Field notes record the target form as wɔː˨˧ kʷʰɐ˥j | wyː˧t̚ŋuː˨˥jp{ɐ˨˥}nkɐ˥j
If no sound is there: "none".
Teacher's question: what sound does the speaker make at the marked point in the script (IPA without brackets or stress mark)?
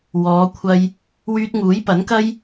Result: ɐ˨˥